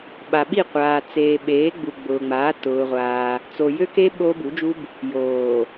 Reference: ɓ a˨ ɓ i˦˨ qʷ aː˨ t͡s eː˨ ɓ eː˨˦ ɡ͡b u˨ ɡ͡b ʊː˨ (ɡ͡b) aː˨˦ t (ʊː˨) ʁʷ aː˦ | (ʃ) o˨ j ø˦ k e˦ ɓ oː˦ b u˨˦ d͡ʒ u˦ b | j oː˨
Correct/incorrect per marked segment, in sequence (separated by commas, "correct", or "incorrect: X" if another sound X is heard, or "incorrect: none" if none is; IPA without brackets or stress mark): incorrect: ŋ͡m, incorrect: ʊː˦, incorrect: t͡s